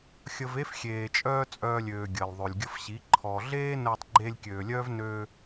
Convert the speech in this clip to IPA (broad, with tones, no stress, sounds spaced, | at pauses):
xʲ ə˧ v e˦ f xʲ eː˨ t͡ʃʼ œː˧ t͡sʼ œː˧ lʲ øː˨ ɡʲ əː˨ l ðˤ ø˨ lʲ ɡʲ ə˧ f ɕ i˨˦ ǃʰ ɔ˨ ɮ eː˦ n əː˧ tˤ ɡ͡ǃ eː˧ lʲ kʲ øː˨ lʲ œː˦ v n ø˧